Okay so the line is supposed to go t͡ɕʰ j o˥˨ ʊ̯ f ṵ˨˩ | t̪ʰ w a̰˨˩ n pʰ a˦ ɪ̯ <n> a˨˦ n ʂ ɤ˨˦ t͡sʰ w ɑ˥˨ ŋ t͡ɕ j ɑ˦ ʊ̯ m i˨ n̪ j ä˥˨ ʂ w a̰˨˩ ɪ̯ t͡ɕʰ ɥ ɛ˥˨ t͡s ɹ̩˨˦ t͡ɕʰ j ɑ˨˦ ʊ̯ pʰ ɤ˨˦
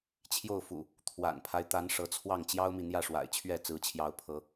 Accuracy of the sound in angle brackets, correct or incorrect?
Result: incorrect